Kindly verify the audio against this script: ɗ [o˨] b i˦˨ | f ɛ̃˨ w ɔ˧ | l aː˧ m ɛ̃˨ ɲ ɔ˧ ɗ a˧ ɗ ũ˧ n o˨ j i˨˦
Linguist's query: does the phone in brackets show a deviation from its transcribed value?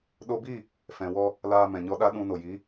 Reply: yes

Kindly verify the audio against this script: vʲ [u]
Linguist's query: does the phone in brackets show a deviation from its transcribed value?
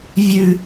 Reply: yes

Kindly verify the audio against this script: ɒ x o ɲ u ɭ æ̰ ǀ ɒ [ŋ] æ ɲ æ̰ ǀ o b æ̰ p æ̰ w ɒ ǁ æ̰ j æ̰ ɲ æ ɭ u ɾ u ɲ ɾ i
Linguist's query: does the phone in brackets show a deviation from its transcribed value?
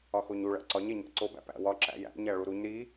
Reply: yes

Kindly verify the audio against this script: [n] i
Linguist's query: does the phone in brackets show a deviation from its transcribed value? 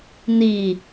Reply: no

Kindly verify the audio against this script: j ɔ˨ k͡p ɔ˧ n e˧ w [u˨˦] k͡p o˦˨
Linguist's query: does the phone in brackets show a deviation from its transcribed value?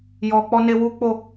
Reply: yes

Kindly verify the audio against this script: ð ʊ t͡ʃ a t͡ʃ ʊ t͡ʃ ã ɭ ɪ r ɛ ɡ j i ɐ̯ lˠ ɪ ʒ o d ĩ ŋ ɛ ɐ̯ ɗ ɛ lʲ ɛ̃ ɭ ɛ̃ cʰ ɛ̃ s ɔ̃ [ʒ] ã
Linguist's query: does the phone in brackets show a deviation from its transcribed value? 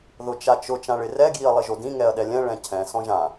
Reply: no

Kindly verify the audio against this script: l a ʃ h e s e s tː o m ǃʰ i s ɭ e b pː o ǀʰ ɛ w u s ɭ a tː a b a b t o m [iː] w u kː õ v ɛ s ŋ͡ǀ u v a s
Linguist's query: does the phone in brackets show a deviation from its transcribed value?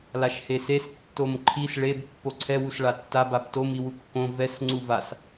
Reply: yes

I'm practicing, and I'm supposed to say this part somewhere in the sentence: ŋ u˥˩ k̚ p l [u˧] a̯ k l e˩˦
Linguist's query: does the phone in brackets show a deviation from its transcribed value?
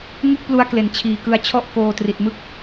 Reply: no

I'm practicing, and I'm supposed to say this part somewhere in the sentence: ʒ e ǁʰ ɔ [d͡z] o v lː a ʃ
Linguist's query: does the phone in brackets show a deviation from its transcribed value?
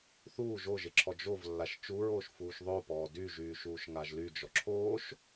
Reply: yes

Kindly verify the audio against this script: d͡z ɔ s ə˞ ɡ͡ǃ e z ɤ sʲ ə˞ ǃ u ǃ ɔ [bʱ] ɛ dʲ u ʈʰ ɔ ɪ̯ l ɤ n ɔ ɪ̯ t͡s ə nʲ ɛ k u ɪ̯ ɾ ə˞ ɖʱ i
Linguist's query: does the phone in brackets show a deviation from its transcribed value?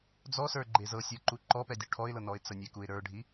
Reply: yes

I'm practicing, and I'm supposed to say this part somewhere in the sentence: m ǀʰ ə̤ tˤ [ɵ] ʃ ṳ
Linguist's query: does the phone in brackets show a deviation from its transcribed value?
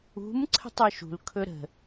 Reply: no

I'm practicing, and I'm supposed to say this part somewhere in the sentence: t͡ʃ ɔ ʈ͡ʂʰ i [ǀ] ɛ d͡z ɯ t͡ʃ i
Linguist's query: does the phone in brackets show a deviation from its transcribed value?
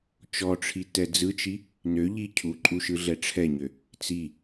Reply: yes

